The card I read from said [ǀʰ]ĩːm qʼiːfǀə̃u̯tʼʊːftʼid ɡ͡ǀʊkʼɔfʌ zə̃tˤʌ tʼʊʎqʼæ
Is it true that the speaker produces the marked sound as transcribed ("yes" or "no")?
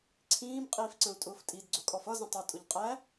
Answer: yes